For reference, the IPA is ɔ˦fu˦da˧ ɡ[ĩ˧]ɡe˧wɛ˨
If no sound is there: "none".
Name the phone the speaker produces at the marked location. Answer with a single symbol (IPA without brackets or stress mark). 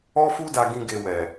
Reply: ĩ˦